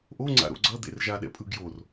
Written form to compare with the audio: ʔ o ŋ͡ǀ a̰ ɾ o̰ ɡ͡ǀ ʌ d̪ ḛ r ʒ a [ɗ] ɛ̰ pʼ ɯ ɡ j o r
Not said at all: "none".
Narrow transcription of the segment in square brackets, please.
ɗ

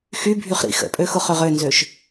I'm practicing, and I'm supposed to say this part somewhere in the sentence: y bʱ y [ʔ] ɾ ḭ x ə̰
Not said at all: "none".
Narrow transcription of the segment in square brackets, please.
χ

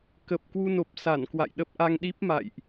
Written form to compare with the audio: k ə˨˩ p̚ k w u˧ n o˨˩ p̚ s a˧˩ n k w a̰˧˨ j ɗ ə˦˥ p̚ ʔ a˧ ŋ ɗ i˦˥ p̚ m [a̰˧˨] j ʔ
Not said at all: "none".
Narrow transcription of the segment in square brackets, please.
a̰˧˨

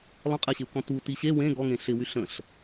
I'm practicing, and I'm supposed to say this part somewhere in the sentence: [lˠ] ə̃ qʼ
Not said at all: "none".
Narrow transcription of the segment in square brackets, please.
lˠ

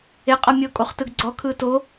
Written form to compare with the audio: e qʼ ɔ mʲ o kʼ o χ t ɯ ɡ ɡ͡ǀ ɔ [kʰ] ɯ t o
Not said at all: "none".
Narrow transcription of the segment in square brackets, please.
kʰ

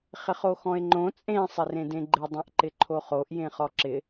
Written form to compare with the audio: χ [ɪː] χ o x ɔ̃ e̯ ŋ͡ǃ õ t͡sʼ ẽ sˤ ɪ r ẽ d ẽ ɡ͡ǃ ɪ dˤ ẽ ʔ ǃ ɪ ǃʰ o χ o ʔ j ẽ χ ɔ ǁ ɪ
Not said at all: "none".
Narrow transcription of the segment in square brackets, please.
ɪ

